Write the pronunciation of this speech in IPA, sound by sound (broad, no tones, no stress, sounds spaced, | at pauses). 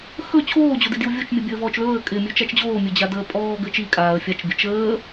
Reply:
x ɵ t͡ɕʰ oː d͡ʑ o d i d j u vʲ o t͡ʃ mʲ ɘ bʲ əː v ɔː t͡ʃ l ɵː ə̯ kʼ ɪ mʲ ɵ t͡ʃ a t͡ʃ d͡ʑ oː mʲ ɵ d͡ʑ a d əː pʼ ɔː ɡ ɘ t͡ʃ i kʼ aː ə̯ fʲ a t͡ʃ bʲ ə t͡ʃ əː